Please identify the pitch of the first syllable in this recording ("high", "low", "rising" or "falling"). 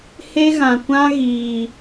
high